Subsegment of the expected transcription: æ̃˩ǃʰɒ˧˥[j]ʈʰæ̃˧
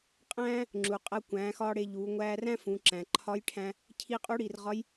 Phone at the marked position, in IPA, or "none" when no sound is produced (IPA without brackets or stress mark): j